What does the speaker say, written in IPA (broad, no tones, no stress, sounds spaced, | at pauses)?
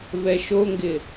v ɛ ʃ o ŋ ɡ ɪ